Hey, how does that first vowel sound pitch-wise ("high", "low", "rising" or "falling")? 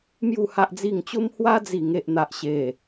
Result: low